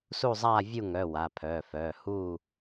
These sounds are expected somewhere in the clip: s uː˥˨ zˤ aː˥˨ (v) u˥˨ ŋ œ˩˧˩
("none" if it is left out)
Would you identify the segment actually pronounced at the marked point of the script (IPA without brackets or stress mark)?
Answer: vʲ